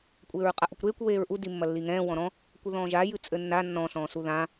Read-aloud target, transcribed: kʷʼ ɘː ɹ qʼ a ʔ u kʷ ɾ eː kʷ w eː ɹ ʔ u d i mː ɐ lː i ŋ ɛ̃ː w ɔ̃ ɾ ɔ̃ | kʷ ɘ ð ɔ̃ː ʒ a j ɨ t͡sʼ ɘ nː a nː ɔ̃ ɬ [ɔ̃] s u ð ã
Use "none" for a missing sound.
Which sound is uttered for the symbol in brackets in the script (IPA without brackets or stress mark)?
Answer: ɔ̃ː